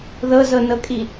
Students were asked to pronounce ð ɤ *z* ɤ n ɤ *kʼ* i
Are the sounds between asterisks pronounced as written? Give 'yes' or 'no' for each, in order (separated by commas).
yes, yes